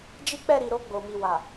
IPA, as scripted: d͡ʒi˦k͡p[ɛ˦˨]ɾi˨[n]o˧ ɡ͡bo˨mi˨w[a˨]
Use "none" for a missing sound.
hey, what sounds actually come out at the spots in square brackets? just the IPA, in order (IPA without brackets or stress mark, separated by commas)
ɛ˦˨, ɾ, a˨